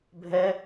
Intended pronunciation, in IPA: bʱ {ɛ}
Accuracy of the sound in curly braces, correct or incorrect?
correct